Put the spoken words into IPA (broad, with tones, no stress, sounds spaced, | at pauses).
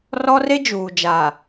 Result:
r ɔ˦ r e˦ d͡ʒ uː˨ d͡ʒ a˨